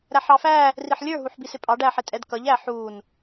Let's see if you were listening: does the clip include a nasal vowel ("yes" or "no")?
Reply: no